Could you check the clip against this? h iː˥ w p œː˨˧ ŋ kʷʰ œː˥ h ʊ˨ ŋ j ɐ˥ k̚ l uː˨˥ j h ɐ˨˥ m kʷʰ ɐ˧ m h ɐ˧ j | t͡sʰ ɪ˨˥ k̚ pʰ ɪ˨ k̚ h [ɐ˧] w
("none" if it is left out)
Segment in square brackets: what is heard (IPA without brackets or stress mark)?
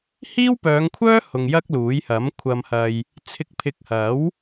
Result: ɐ˨˥